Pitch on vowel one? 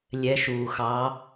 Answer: rising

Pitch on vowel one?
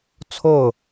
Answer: falling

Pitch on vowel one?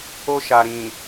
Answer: high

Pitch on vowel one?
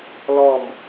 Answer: falling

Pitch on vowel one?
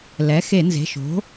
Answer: rising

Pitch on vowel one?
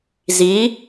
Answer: rising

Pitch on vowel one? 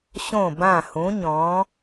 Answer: falling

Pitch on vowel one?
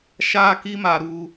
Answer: high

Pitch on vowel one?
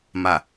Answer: low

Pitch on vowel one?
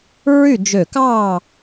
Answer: falling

